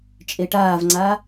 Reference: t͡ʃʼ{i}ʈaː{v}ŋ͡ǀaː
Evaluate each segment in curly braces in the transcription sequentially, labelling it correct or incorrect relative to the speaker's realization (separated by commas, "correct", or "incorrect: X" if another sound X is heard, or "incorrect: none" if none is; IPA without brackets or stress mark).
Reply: incorrect: e, correct